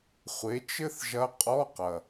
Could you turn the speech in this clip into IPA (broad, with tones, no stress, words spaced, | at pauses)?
χʷe˩˥t͡ʃɘ˥θ ʒɐ˧˥qʼɔ˧˥˧qɐ˨˩